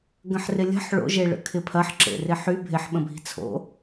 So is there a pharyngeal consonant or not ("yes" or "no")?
yes